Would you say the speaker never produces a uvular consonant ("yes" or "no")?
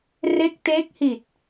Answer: yes